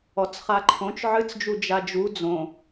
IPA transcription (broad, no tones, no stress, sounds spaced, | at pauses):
ɔ t͡s χ a ǃʰ õ t͡ʃ ʕ ɨ t͡s d͡ʒ u d͡ʒ a d͡ʒ u d͡z õ